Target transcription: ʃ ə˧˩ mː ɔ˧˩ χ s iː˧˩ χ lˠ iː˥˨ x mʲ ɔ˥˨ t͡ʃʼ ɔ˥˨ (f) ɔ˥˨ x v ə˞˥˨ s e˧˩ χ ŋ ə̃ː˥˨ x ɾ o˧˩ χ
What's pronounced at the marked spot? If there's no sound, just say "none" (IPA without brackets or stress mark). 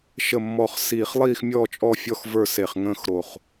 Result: fʲ